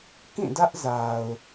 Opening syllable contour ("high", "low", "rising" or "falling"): falling